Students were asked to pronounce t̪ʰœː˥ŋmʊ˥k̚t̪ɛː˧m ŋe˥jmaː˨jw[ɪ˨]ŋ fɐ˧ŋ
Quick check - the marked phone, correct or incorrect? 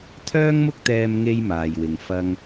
correct